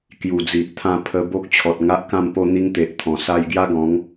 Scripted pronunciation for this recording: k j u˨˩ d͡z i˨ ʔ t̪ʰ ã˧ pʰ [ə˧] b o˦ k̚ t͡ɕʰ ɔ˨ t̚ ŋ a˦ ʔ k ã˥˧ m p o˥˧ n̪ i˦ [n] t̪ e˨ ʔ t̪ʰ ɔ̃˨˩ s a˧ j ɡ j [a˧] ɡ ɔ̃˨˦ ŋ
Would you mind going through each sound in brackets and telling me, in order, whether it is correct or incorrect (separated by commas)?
correct, incorrect, incorrect